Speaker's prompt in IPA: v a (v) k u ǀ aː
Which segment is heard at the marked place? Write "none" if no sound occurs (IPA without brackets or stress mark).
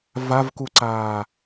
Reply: v